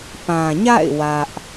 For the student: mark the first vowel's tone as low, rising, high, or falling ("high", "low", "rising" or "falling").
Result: low